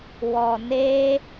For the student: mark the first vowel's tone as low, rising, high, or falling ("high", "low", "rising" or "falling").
low